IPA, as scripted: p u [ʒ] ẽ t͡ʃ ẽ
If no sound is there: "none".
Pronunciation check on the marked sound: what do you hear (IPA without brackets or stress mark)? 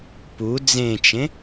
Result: d͡z